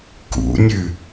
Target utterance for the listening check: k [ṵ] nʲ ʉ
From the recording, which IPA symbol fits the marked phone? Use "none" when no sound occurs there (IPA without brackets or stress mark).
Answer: ṵ